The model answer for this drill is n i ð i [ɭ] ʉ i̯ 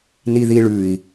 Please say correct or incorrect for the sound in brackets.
correct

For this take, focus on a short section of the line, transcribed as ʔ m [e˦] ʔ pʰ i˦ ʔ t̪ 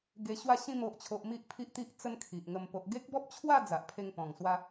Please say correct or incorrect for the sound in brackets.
incorrect: i˦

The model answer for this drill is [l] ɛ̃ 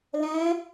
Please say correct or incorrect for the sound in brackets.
correct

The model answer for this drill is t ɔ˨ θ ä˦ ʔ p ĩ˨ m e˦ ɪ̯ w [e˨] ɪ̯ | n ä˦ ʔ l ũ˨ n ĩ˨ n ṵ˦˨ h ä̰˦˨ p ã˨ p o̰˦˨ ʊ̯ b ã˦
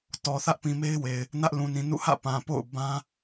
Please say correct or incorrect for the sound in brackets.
correct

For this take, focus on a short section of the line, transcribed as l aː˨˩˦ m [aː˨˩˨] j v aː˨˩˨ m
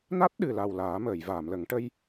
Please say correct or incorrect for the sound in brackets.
incorrect: əː˨˩˨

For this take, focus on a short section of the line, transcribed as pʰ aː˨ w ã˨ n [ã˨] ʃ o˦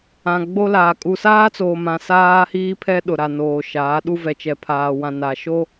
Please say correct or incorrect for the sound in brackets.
incorrect: a˨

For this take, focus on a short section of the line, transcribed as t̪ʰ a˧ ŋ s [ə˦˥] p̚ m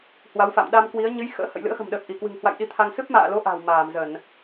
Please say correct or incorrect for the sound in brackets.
incorrect: ɨ˦˥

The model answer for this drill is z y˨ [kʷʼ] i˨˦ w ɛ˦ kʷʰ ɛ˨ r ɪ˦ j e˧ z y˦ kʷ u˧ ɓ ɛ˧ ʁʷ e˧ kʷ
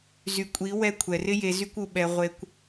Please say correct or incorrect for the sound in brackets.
correct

